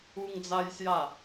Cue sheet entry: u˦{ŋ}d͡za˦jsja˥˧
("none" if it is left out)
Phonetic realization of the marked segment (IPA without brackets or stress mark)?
ŋ